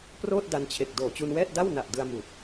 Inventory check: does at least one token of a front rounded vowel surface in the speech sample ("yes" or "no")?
no